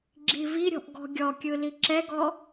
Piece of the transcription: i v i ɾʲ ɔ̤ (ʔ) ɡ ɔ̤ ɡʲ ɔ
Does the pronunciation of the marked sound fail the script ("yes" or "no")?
no